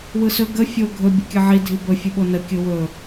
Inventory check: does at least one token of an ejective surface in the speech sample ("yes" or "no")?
no